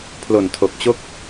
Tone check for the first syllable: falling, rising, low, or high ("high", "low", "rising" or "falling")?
low